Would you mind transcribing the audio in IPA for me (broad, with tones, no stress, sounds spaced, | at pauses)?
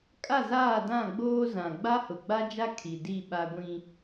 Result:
kʼ a˦˨ z aː˦˨ d ã˦˨ ɡ͡b oː˦ z ã˨ ɡ͡b a˦ h ʊ˨ ɡ͡b a˦ d͡ʒ a˦ kʰ i˨ d i˦˨ ɓ a˦ ɡʷ ĩ˦